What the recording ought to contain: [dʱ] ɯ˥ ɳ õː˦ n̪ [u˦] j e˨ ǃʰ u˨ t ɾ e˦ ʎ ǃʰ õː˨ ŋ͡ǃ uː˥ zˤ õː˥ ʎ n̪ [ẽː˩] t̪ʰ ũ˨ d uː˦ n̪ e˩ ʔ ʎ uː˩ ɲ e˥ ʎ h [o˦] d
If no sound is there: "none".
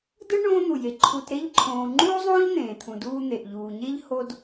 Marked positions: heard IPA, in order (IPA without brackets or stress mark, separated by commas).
d, u˩, ẽː˩, o˦